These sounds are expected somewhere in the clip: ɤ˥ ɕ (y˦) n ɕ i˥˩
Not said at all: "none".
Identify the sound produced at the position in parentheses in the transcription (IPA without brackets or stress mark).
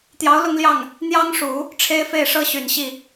y˨˩